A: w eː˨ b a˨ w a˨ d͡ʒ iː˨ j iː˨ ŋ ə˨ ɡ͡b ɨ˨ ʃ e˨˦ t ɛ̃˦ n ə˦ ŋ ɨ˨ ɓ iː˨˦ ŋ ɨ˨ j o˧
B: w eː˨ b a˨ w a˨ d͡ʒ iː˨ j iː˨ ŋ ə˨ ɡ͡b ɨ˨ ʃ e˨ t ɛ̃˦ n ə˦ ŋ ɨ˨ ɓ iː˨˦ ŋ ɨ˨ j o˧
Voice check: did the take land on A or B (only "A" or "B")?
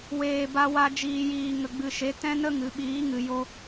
A